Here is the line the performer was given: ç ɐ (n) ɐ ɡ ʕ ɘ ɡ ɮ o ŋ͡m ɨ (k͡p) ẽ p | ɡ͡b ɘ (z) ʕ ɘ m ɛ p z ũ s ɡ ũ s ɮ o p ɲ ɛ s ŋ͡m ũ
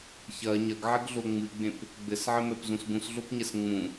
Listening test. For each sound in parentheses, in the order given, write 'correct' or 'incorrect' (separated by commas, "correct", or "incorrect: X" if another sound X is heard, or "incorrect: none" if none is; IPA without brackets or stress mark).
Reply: incorrect: ɲ, incorrect: ɡ͡b, incorrect: s